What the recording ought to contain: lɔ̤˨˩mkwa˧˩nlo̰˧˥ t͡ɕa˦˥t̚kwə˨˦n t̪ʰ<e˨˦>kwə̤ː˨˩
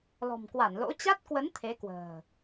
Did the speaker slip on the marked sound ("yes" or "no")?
no